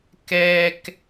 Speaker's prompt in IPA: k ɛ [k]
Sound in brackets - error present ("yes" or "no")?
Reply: no